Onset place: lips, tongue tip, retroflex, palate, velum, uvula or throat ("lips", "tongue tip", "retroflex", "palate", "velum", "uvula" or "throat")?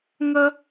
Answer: velum